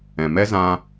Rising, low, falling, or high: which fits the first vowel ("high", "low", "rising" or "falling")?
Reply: low